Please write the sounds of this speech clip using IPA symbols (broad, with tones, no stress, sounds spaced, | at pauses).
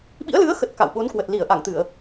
ɓ ḭ˧˥ ə̯ l ɨ˨˦ ə̯ x ə˨˩ t̚ k a̰˧˨ w ɓ o˨˦ n k w ə˨˩ t̚ l i˧˩ ə̯ ʔ a˧˩ ŋ t̪ ɨ˧˩˨ ə̯